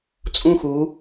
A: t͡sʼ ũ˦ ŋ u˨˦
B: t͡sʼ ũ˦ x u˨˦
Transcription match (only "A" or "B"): B